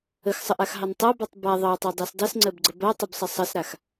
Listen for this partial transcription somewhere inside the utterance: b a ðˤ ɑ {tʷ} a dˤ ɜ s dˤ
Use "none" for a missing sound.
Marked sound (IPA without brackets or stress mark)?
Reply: tˤ